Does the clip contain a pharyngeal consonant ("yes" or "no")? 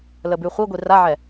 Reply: yes